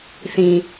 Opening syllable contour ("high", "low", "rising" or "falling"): low